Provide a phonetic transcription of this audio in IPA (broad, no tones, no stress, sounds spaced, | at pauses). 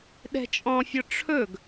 ɗ ɛ̤ t͡ʃʼ ɔ̃ fʲ ɔ ʈ͡ʂʰ ɵ ɡ